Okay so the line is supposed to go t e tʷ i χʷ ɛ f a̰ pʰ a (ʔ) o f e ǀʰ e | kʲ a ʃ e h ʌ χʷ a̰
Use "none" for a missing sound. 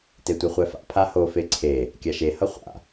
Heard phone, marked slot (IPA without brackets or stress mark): h